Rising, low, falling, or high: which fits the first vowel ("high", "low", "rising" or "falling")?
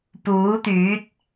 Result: rising